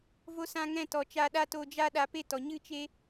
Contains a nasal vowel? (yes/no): yes